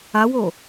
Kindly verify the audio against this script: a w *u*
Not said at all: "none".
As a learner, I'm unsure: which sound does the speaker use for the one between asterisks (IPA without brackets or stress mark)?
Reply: o